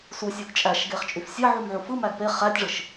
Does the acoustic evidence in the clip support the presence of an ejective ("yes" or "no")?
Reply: yes